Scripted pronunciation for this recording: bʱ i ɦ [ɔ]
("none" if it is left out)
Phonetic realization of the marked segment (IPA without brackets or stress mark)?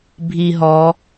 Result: ɔ